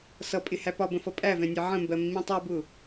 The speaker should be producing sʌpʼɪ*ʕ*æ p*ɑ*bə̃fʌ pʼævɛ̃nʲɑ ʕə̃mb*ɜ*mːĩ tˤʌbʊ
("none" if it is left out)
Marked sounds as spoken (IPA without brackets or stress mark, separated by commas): h, ɒ, ɜ